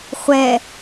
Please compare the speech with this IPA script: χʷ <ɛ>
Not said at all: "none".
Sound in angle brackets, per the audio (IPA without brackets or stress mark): ɛ